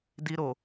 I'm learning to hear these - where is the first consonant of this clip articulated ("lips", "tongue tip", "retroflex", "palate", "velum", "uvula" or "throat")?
tongue tip